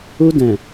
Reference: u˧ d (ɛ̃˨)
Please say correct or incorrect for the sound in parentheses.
correct